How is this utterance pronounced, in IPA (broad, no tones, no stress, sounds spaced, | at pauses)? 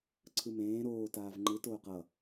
ǀʰ ɯ m ẽː ɾ oː t aː v ŋ͡ǃ ɯ t oː q ʌ